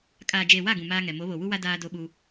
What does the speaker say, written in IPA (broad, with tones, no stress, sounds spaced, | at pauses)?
kʼ aː˨ d͡ʒ eː˨ w a˦˨ ɡ ũ˨ m aː˦ ŋ ɛ˨ m o˨˦ β o˨ w u˦ w a˦ d aː˦ d o˦ ɓ u˦